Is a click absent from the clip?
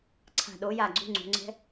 no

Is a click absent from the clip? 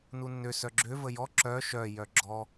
no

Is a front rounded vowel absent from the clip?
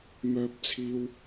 no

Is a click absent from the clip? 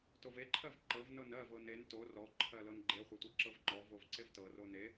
no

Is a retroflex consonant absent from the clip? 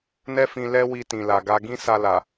yes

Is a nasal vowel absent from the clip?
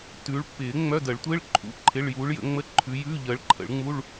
yes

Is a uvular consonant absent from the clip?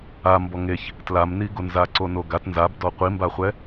no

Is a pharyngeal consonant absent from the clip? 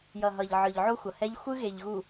no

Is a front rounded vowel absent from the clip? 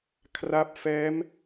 yes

